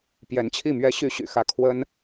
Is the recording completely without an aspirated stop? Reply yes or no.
no